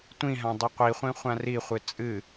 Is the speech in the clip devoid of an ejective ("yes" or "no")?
no